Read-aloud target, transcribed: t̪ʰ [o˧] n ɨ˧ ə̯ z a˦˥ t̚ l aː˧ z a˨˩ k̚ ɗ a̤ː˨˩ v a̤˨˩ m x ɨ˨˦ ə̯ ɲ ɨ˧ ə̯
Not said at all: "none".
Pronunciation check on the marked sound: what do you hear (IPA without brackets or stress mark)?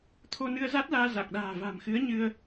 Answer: o˧